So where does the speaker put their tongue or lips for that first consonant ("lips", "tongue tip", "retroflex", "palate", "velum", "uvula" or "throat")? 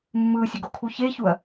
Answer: lips